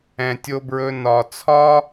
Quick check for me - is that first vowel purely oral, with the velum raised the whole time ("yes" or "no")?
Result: no